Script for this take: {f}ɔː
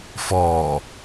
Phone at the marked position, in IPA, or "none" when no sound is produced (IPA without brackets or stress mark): f